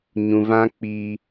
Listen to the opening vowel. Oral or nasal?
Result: nasal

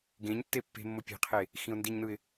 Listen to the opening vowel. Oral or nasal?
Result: nasal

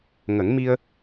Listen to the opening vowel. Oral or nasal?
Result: oral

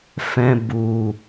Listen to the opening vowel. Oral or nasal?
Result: nasal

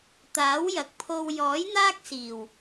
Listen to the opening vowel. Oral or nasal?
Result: oral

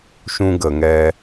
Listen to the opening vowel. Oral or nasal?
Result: nasal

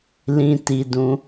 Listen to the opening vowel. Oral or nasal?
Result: nasal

